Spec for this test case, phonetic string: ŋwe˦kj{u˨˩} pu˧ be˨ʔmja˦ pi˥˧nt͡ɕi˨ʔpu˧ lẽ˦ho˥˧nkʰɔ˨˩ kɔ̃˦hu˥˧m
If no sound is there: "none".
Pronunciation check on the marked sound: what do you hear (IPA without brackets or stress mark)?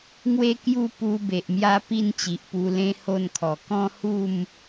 u˥˧